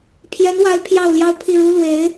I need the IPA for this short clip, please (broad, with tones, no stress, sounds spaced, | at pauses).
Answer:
pʰ j ɛ˧˥ n w a˧˥ ɪ̯ pʰ j ɑ˥˩ ʊ̯ l j ɑ˥ ʊ̯ pʰ i˥˩ ɻ u˥ l w e˧˥ ɪ̯